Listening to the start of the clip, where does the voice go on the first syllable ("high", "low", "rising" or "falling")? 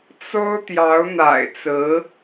high